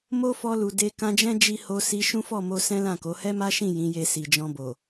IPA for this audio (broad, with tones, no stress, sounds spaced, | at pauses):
m o˦ f ɔ˧ l u˨ d e˧ k ã˧ d͡ʒ ɛ̃˦ d͡ʒ i˦ h o˧ s i˧ ʃ ũ˦ f ɔ˦˨ m o˧ s ɛ̃˦ l ã˦˨ k o˨˦ h ɛ˦ m a˦ ʃ ĩ˦˨ j ĩ˨˦ j e˧ s i˨ d͡ʒ ɔ̃˧ b o˨